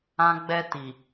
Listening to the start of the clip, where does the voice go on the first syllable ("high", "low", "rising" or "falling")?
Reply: high